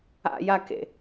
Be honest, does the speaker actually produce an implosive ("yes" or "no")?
no